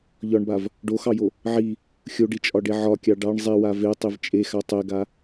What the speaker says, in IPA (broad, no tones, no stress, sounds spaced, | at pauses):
ʎ ɒ ɳ b a v | ɖ o x ɑ j o | ʕ i | xʲ o ɖ i t͡ʃʼ ɒ ɖ e ʕ ɒ kʲ ɑ ɖ ɑ ɳ zˤ i w a v e tˤ i v t͡ʃʼ e x a tˤ e ɡ a